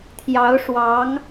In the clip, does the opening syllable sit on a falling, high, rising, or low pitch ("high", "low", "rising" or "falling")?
rising